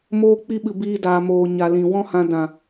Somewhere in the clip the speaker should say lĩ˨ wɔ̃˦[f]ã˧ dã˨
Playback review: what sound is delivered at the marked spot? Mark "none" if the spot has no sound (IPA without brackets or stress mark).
h